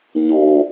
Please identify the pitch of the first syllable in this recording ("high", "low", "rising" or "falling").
low